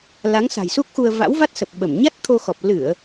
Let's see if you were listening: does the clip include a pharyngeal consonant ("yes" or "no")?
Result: no